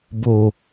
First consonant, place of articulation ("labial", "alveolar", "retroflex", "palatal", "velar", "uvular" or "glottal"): labial